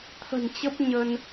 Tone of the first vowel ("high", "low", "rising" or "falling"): low